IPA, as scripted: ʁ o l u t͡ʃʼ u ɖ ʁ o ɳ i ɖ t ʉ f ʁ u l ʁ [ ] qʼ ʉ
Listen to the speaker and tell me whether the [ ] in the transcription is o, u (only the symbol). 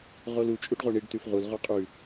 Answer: o